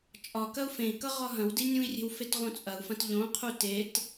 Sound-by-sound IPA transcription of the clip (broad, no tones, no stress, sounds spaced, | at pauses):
t͡ʃʼ ɒ k ɐ u̯ f ẽ i̯ k ʌ ʁ ɒ ɦ ɐ̃ w d i nʲ ũ i̯ rʲ e̤ w f e t ʁ õ t͡sʼ ɐ u̯ f ɐ̃ t ʎ õ qʰ u t e t